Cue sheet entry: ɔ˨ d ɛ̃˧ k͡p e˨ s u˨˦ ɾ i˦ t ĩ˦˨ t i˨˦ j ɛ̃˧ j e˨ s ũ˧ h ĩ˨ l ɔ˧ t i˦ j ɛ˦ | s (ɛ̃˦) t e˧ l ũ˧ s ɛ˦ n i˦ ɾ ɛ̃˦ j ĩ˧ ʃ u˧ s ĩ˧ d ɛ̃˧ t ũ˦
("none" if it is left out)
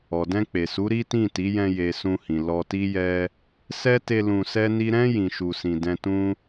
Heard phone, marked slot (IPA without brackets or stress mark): ɛ˦